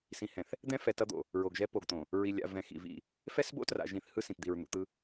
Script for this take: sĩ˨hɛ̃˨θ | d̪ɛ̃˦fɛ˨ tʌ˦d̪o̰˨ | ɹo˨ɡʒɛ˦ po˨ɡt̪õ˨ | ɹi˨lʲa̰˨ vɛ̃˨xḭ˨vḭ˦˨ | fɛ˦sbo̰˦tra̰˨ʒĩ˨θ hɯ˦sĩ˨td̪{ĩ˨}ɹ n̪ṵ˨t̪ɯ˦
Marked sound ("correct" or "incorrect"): incorrect